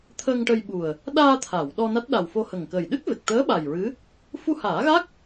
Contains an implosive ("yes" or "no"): yes